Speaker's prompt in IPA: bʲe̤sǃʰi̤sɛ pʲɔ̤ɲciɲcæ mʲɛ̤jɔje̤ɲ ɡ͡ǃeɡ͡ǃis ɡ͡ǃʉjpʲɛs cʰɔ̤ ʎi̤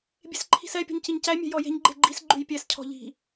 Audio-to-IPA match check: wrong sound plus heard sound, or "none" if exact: none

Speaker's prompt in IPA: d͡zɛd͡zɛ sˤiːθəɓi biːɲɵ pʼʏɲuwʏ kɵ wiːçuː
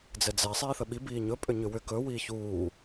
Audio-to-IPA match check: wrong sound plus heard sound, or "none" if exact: u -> ʏ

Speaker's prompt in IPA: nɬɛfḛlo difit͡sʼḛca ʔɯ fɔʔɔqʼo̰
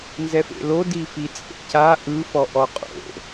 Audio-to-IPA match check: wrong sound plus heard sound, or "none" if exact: ɬ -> z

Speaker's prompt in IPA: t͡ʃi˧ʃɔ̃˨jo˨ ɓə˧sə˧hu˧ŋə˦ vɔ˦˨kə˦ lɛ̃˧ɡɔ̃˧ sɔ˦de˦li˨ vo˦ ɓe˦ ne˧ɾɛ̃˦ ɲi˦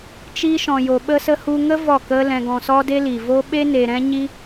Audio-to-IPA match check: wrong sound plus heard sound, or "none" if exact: none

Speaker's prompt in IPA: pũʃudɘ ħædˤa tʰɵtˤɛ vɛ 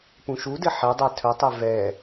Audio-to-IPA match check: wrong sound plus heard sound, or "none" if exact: æ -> ɛ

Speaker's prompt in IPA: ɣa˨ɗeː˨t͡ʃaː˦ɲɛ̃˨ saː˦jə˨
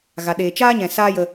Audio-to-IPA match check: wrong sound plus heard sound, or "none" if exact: ə˨ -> ə˧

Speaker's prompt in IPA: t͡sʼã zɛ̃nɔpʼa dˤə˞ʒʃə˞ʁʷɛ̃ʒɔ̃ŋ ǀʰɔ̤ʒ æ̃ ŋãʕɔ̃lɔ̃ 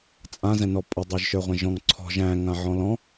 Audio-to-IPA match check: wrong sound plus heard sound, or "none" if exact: none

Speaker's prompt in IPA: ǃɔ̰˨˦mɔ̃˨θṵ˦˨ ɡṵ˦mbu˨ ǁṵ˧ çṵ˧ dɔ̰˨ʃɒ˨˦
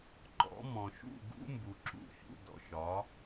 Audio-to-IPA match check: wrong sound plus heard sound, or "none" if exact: θ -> ʃ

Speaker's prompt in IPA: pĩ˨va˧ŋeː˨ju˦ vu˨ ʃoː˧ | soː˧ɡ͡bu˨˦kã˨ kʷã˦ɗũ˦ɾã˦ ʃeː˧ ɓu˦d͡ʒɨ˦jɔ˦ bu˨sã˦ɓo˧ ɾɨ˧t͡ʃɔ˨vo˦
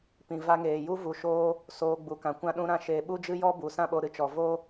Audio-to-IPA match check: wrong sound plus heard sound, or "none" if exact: none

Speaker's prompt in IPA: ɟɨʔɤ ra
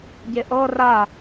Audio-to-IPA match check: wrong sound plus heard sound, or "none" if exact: ɨ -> e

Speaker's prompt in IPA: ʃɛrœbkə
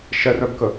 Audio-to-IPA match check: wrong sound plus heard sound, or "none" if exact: none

